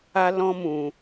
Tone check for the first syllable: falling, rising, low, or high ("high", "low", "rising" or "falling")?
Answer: high